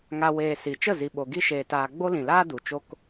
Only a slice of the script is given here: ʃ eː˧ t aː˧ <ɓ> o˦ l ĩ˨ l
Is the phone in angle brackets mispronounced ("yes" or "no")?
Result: yes